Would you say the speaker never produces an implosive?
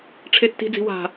yes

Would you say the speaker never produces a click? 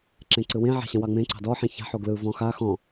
no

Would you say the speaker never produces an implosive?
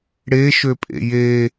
yes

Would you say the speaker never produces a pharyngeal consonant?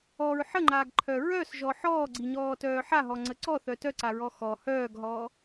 no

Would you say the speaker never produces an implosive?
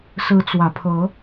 yes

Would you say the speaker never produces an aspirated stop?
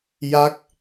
yes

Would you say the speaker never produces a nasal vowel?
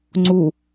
yes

